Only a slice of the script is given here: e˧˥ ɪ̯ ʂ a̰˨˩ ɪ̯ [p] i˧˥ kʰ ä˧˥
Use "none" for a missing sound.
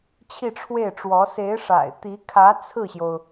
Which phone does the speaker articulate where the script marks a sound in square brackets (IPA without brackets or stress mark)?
t̪